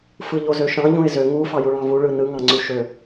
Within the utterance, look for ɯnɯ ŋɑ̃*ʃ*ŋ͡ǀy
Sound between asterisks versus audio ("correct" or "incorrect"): incorrect